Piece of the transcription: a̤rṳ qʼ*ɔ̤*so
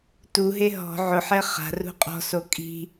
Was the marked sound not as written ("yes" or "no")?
no